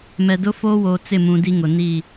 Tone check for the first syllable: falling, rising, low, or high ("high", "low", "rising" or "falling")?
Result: low